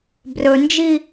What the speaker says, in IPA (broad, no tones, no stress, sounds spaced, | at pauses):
b r ɵ n d͡ʒ i